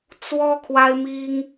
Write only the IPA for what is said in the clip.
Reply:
t͡swɔ˦ kʰwa˦ɪ̯mi˦ŋ

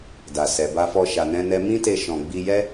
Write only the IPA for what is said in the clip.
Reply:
da˨sɛ˨ba˧fɔ˧ ʃa˧nɛ̃˦nɛ˦ mĩ˦te˧ ʃɔ̃˨ɡ͡bi˧jɛ˦

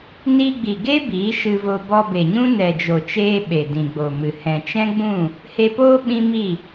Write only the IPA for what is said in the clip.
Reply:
ni˧ɡ͡bi˨ ɡe˦ biː˨˦ʃɨ˧vo˧ bɔ˧be˨ɲũ˦ nɛ˨d͡ʒo˨t͡ʃeː˧ ɓe˨dĩ˨ɡ͡bo˨mɨ˨ hɛ̃˨t͡ʃɛ̃˦ɡ͡bũ˦˨ | he˧poː˦ ɓĩ˦mi˦˨

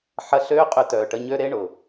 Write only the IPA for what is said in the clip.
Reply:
ħɐ˧ɬøː˦qʼʏ˧ tœː˨ʈə˧ɲø˦ ɾe˦ɳʊ˨

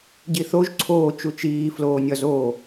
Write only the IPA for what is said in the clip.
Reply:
ɟiθoʒ ǀʰoː t͡ʃut͡ʃiː floːnʲɒzoː

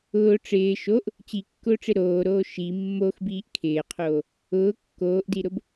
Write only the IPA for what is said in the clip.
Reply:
ʊː ʈ͡ʂɪː ʃoʔ | t͡ɕikːʊːʈ͡ʂɪ ɾoːɾoː ʃi mːoxbiːʔ kʰɪːqʰoː | ʊː kːoːʔdiɾʊb

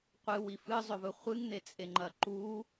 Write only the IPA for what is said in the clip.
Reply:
qʷɨwif ɨzˤɵvɵ χʷɨŋn̪et͡sʼe ŋ͡ǃɐǃu

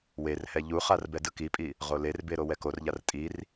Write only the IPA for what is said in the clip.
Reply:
werhɛ ʎuχar bɛdɯkipʼi | ʁolerbe ɾowɛkorʎar tʼir

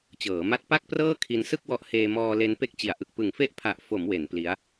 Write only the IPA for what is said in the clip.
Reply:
t͡ɕɤː˩˦ma˦˥t̚ pa˥˩k̚prɤː˥˩ kʰi˧n sɯ˥˩k̚wɔ˦˥ʔ heː˧mɔː˧ le˧npe˦˥k̚t͡ɕi˩˦a̯ʔɯ˨˩k̚ pɯ˨˩ŋfe˦˥ʔpʰa˨˩ʔ fo˩˦m we˩˦n pli˦˥a̯

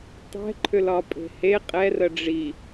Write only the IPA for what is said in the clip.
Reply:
tˤɛ̤ǃʰʏlɒ pʼe̤he qʼɛrə ɖ͡ʐi

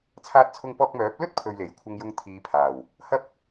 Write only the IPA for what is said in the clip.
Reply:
t͡sʰaː˧t̚t͡sʰʊ˧ŋpɔː˧k̚mœː˨˥p̚ lɵ˥t̚pʰɵ˨ɥ le˨˩jkʷʰɐ˧ŋjʊ˧ŋ t̪ʰiː˨˧pʰaː˨˩w | hɐ˧p̚

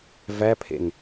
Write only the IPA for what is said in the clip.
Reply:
væpʰḛn

